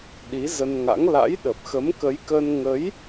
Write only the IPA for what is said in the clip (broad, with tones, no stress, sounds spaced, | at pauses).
ɗ i˨˦ z ə˧ n ŋ a̰˧˥ ŋ l a̰˧˥ j ɗ ə˨˩ p̚ x ə˨˦ m k ə˨˦ j k ə˧ n ŋ ə˨˦ j